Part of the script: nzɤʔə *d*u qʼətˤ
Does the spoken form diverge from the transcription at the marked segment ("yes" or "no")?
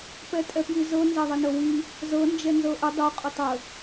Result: yes